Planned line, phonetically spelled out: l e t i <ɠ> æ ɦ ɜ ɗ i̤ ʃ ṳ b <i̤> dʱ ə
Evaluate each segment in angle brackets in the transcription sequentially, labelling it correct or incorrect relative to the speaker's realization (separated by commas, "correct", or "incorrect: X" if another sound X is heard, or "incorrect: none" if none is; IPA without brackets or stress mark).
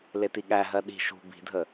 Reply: correct, correct